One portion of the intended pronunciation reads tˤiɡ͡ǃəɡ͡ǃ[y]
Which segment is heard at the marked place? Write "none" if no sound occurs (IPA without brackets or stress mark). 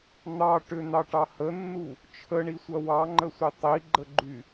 y